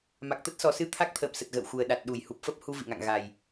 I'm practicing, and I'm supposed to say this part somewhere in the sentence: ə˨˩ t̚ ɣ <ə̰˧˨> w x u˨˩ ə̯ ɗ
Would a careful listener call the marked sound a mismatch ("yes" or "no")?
no